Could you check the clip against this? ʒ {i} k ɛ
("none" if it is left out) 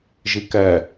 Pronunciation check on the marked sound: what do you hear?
i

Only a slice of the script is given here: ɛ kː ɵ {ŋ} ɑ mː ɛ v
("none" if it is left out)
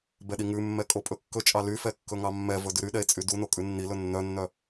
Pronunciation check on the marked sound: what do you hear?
ŋ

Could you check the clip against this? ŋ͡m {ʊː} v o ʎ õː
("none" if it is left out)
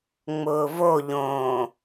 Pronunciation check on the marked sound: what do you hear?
ʊː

